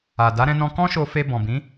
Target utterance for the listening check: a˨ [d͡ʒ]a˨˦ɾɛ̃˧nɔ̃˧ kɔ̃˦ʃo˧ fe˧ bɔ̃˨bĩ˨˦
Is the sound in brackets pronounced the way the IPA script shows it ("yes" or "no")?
no